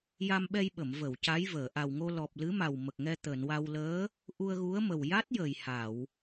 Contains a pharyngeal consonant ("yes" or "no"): no